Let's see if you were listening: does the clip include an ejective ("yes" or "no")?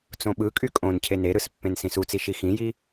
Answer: yes